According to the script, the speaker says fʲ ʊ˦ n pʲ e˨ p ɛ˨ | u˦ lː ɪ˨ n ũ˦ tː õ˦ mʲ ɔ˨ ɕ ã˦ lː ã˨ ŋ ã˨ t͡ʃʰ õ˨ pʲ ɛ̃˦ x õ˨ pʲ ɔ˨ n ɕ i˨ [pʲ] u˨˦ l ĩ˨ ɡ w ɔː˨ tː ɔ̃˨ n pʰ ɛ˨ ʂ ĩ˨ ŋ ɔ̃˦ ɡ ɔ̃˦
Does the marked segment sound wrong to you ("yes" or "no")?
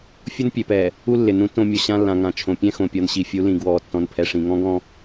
yes